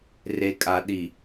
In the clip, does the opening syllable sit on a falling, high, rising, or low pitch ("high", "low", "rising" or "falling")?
low